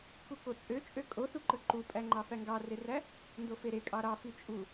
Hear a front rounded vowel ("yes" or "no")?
yes